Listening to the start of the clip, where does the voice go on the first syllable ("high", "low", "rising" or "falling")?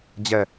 falling